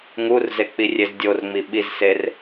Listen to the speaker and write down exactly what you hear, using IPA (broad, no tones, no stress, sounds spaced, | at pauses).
ŋ u r z e k͡p i rʲ e z dʲ o r ŋ͡m i ɓ i z s e r